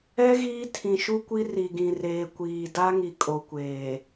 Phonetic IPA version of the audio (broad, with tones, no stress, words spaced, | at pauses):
ɛ˦ ɣiː˦ tʰĩ˨ʃu˦kʷi˦ ri˨ɡĩ˨ reː˨kʷiː˨ da˦ŋi˨kʼo˨kʷeː˨